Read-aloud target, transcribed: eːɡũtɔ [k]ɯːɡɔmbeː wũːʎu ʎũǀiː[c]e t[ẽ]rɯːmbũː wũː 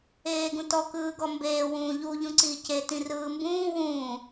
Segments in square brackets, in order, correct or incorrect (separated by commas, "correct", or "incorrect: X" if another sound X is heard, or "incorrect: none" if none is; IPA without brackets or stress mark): correct, correct, incorrect: ĩ